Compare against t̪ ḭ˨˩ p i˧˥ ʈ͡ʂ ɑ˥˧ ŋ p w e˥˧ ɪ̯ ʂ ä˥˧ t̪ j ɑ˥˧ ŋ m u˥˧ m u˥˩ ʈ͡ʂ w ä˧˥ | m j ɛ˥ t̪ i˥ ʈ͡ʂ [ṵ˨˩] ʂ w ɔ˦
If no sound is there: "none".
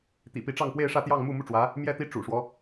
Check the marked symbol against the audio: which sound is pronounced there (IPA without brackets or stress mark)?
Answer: ṵ˨˩